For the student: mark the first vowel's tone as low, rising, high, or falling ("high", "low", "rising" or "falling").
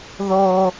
high